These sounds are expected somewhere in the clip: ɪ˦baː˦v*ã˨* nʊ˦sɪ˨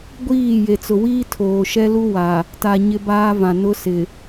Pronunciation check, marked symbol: correct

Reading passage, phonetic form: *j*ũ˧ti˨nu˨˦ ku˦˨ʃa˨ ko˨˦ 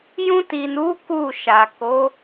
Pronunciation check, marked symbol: correct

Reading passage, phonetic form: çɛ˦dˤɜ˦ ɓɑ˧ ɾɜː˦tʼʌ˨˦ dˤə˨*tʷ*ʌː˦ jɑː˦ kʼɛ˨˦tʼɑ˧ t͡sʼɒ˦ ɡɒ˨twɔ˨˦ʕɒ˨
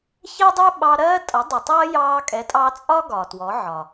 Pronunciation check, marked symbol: incorrect: tˤ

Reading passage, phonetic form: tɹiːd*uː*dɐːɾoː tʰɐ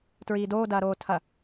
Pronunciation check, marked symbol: incorrect: oː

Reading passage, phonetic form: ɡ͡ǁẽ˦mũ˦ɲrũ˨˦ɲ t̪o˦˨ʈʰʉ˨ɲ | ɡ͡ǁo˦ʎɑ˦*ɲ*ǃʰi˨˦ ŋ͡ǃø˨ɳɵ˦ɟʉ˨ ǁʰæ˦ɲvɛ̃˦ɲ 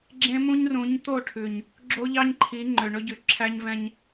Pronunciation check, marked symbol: correct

